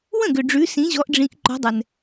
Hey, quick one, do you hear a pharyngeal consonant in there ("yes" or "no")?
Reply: no